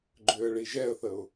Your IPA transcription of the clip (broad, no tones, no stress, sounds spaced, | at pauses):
ɡ͡ǃ ʏː ə̯ ɭ i ʒ ɛ ə̯ θ ə ʊ̯